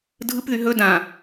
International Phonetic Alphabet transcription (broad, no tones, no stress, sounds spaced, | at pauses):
dʱ ɯ p ð y ɦ ɵ d ã